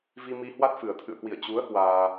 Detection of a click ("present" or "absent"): absent